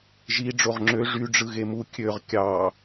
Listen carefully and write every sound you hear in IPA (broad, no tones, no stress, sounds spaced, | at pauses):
ʒ i ɖ͡ʐ o ʁ ŋ͡ǁ ø ʐ y ɖ͡ʐ ɯ ɣ e m u kʲ ø ʁ kʲ ɑ